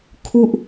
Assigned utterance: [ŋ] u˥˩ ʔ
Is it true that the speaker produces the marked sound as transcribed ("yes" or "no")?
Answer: no